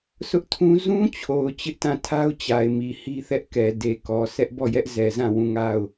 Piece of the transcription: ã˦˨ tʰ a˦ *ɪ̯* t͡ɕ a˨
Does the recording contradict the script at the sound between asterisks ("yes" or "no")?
yes